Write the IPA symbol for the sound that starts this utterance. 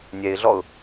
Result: nʲ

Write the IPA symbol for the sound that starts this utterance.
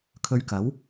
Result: kʰ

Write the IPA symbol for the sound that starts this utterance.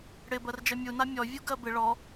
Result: ɽ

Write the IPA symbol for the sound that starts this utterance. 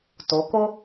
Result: t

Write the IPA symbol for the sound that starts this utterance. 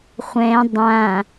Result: χʷ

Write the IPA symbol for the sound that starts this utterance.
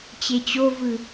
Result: t͡ɕ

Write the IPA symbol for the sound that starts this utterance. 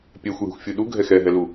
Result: pʲ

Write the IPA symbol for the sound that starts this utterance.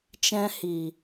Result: t͡ʃ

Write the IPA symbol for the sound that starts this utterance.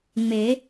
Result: ŋ͡m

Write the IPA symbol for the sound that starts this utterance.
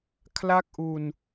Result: kʰ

